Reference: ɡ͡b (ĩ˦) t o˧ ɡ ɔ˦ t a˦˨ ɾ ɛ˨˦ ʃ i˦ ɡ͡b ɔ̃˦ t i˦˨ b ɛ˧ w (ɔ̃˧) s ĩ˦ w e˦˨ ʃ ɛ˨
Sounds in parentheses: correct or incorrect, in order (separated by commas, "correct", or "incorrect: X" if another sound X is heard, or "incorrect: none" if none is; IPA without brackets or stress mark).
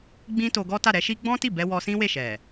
correct, incorrect: ɔ˧